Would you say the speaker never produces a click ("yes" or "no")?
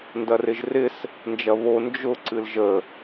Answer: no